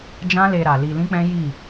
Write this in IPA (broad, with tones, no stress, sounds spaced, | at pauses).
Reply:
d͡ʒ ã˦ l e˧ ɾ a˨ l i˧ l ĩ˦ k͡p ɛ̃˦ j i˦˨